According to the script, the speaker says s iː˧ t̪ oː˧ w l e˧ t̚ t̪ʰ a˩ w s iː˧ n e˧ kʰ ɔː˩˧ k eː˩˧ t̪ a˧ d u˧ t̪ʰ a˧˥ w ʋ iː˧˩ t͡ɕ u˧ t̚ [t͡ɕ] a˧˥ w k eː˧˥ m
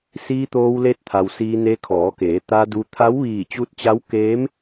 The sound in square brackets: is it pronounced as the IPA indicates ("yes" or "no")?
yes